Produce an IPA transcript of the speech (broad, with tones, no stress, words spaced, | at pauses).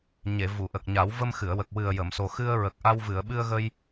ɲe˨˩˨ vu˨˩˨ʔə˨˩k̚ɲa˨˩˦w və˧mxɨ˨˩˨ə̯ wə˨˩k̚ wɨ˨˩ə̯jə˨˩˨mso˨˩xɨ˧ə̯ ɹə˨˩k̚ ʔa˧wvɨ˨˩˨ə̯ ɓɨ˧ə̯ɣə˧j